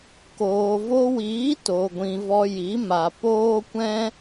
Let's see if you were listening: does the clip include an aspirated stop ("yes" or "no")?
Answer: no